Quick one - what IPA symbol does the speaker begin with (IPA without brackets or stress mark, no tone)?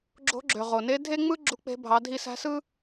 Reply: ɡ͡ǁ